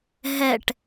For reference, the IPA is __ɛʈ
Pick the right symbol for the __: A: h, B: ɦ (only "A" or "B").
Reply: B